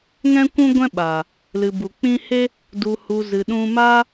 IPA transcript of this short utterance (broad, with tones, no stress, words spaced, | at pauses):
ŋɛ̃˦kʷũ˦ɡʷɛ̃˦ɓaː˨ | lɨ˨bu˨k͡pĩ˦ he˦ | du˨hu˨ zɨ˨ɗũ˧ ma˦